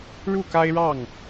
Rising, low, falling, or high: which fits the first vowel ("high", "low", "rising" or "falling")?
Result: falling